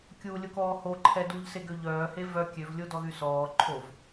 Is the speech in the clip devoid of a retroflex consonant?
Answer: yes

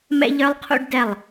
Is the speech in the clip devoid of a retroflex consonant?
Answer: no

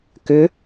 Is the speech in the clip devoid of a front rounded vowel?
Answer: no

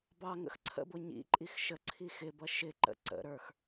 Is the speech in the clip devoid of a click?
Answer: no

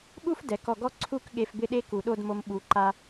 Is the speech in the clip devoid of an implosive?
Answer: no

